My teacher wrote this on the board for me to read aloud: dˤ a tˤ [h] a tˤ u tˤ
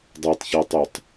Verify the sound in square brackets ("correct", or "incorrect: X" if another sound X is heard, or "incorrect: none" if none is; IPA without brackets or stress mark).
incorrect: ç